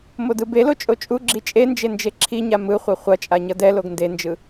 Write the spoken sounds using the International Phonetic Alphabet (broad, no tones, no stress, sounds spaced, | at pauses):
m o d ɯ b e l o t͡ʃʼ o t͡ʃʼ u ɡ͡ǁ i t͡ʃʼ e n d͡ʒ e n d͡ʒ e ǁʰ i ɲ a m ɯ χʷ ʌ χʷ ʌ t͡ʃʼ a ɲ ʌ d ɛ l o ɡ n d e n d͡ʒ ɯ